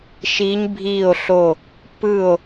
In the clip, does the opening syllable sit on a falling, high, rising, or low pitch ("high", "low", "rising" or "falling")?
rising